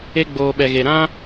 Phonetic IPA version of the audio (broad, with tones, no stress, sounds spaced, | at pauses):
e˧ ɡ͡b oː˨ ɓ ɛ˨ ɣ e˨ ɾ ã˦